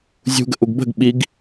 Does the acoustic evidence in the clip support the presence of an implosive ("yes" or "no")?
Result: yes